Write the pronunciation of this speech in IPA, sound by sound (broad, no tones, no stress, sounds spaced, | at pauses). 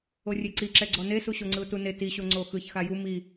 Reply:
o rʲ e ǀ i ǁ ɛ ɡ͡ǀ ɔ n e s u ɕ o ŋ͡ǀ ɯ ʊ̯ t u n e t i ɕ o ŋ͡ǀ o x ɯ ç x a j u m i